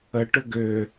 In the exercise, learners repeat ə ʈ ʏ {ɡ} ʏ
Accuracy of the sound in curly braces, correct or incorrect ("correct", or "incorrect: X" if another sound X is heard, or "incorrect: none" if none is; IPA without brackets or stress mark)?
correct